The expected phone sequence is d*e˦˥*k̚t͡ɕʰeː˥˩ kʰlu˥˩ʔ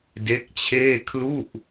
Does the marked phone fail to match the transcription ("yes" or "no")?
no